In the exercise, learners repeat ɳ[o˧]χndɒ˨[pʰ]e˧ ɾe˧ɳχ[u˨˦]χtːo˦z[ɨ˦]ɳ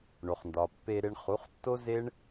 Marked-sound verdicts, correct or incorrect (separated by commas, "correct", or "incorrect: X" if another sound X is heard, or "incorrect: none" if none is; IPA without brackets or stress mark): incorrect: o˨, incorrect: pː, correct, incorrect: e˦